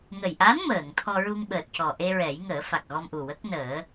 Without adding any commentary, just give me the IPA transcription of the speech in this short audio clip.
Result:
ŋ ə˨˩ j ʔ a˧˥ n m əː˨˩˨ ŋ t̪ʰ ɔ˧ ɹ u˧ ŋ ɓ əː˨˩ t̚ c ɔ˨˩ ʔ e˧ ɹ ɛ˨˩˦ j ŋ əː˨˩˦ f a˨˩ k̚ ɣ ɔ˧ m ʔ u˨˩ w ə˦˥ k̚ n əː˨˩˦

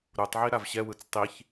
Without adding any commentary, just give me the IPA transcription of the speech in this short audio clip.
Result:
ɾ u tˤ ʕ i ɾ a v ɕ ɛ w ɯ t͡s tˤ i ç

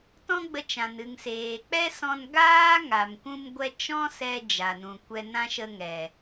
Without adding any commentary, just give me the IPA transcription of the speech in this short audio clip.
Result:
t ɔ̃˦ ɡ͡b ə˧ t͡ʃ ã˨ n ɨ˨ ŋ s eː˨ k͡p ɛ˦ s ɔ̃˧ n ɡ aː˦ ŋ a˨ m kʷ ũ˧ m ɡʷ ɛ˧ t͡ʃ ɔ̃˦ s ɛ˧ d͡ʒ a˨ n ũ˨ kʷ ɛ˧ n ã˦ ʃ ə˧ ŋ ɛ˨

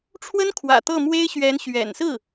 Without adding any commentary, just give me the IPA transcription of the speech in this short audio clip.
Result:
ʈ͡ʂʰ w ə˥ n kʰ w ä̰˨˩ t̪ ɤ˥˩ m w e˥ ɪ̯ ɕ ɥ ɛ˧˥ n ɕ ɥ ɛ̰˨˩ n s ɹ̩˥˩

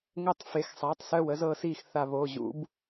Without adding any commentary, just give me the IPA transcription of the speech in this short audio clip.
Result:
ŋ əː˦˨ tˤ f e˩˧˩ x sˤ a˩˧˩ tˤ s œ˦˨ w ə˦ z ɤː˦ s iː˦˨ x θ a˦˨ β oː˩˧˩ ʑ ṵ˨˩˦ b

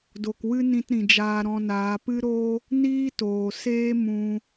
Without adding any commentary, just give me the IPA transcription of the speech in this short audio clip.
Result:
d o˨ k w ɨ˦ n ĩ˧ t ɾ ĩ˨ d͡ʒ aː˧ ɾ ɔ̃˧ n aː˨˦ p ɨ˦ ɾ o˦ | n iː˦ t oː˨ s eː˦ m ũ˧

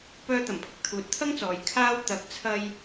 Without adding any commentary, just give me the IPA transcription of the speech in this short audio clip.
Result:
p œː˧ t̪ ɐ˨˩ m pʰ ʊ˧ k̚ t̪ʰ uː˨ t̚ t̪ʰ ɐ˥ ŋ t͡s ɔː˨ j kʰ aː˥ w t̪ ɐ˨˥ k̚ t͡sʰ ɐ˧ j

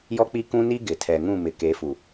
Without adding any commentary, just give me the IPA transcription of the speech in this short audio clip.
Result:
j ɔ˦ k͡p i˦ k ũ˦ n i˦ ɡ ɪ˨ tʰ ɛ˨ ŋ ũ˦˨ m ɪ˨ k e˨˦ f u˨

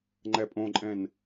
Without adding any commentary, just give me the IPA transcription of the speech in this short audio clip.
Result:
ŋ͡ǃ ɛ pʼ õ ǃʼ ɛ̃ n

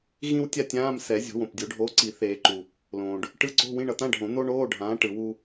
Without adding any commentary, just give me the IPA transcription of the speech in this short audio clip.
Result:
ɣ ĩ˥ w tʲ a˥ tʲ ãː˧˥˧ m s ɛ˨˩˦ zʲ o̤˨˩˦ w õ˩ p dʲ o˨˩˦ ɖʱ oː˨˥ ǀ i˨˩˦ θ eː˨˩˦ ǃ u˩ | l õː˩ ɖ | ʈ ɯ˧˥˧ ǀ o̤˧˥˧ w ĩ˧˥˧ ɳ ʌ˨˩˦ t̪ ã˧˥˧ ɖʱ õ˨˩˦ n̪ o˥ ɳ oː˧˥˧ ɖʱ ãː˨˥ ʈ ɯ˨˩˦ w u˥

